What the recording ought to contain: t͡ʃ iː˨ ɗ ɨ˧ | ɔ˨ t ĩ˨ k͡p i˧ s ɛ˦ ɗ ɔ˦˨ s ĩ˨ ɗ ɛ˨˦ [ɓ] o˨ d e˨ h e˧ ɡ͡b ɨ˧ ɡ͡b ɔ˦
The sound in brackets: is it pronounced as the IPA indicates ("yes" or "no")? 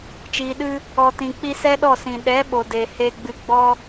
yes